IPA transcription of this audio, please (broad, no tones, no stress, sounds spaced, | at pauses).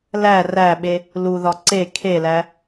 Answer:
l æ r æ ɓ e | l u ð ɒ ǀ e kʰ e l æ